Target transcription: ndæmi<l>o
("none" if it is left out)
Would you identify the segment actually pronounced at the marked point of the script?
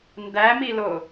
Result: l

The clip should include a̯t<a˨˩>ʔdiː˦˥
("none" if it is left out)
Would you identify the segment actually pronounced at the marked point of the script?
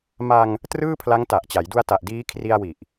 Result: a˨˩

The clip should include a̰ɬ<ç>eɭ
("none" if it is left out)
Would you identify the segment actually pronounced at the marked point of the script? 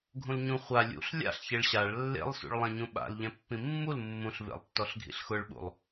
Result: ç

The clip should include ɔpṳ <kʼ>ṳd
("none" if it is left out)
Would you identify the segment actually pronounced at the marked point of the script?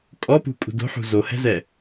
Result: kʼ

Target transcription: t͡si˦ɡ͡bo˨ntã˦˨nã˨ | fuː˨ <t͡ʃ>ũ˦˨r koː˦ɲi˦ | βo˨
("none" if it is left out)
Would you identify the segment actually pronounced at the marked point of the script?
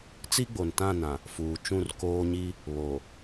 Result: t͡ʃ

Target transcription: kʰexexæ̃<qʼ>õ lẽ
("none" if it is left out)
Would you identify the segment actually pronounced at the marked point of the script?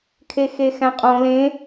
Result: qʼ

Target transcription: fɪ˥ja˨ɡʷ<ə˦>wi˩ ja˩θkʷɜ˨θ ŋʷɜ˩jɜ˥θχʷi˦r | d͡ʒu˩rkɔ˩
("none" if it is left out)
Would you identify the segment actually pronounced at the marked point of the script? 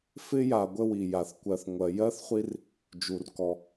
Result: ə˦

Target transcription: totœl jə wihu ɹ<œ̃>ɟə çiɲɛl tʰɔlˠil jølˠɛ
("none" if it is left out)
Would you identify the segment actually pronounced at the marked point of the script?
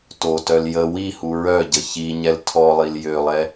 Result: œ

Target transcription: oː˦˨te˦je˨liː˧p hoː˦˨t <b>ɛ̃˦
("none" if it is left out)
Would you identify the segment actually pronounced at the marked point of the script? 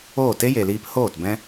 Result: b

